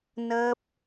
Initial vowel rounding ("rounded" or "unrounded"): unrounded